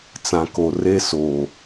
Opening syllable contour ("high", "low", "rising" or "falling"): low